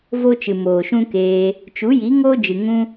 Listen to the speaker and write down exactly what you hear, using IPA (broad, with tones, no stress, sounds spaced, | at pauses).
v o˦ t͡ʃ ɨ˨ m oː˨ ʃ ũ˦ k eː˧ | t͡ʃ u˨˦ j i˨˦ ŋ oː˦ d͡ʒ ɨ˨ ŋ ũ˦